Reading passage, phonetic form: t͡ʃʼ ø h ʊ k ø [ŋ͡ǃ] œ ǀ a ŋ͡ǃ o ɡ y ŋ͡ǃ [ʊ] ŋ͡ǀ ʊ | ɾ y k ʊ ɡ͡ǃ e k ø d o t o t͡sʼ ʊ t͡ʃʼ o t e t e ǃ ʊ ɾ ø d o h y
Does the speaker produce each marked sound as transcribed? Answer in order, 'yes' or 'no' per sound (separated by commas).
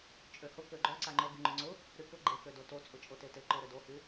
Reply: no, yes